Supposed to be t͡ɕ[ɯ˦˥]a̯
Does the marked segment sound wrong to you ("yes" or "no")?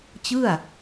yes